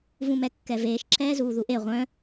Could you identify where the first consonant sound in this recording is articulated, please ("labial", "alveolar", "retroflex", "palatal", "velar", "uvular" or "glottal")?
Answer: labial